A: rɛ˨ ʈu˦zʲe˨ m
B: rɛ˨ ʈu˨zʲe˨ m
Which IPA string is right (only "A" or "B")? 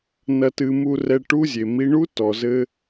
A